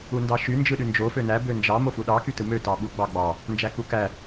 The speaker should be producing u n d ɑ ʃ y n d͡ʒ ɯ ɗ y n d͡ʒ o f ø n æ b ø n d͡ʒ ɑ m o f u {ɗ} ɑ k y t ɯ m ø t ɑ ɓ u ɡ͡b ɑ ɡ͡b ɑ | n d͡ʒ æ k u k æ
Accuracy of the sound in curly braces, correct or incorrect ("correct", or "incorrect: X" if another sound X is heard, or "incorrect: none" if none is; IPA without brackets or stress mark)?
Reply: correct